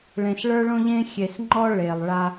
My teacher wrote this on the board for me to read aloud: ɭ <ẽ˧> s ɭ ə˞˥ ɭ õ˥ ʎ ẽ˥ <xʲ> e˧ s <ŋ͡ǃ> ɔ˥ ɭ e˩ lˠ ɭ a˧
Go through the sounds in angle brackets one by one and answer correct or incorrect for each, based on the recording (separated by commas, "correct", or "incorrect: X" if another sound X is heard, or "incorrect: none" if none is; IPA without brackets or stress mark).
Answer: correct, correct, correct